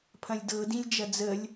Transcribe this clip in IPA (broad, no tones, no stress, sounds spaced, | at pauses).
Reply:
pʰ ɐ̃ lʲ d ɤ d ĩ lʲ d͡ʒ ɐ d͡z ə lʲ